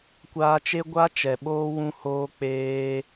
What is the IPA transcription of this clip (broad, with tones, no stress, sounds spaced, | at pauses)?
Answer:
kʷ aː˧ t͡ʃ e˦ ɡʷ a˦ t͡ʃ ɛ˨ ɓ oː˦ w ũ˦ h oː˦ k͡p eː˦